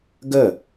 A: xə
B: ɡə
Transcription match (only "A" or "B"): B